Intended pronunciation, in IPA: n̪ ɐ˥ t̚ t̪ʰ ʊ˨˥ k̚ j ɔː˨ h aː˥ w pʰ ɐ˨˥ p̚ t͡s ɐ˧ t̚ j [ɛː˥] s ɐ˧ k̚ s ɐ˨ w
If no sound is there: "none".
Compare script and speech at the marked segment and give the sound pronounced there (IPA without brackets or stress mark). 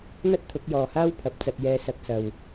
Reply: ɛː˧